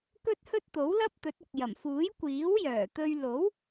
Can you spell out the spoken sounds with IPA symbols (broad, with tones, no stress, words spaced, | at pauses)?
kɵ˥t̚hɵ˥t̚t̪o˨˥wlɐ˥p̚ t̪ɵ˨˥t̚ʊ˨k̚ jɐ˨˩m fuː˨˥jkʷiː˨˥wjœː˨˩t̪ɵ˧ɥ lo˨˥w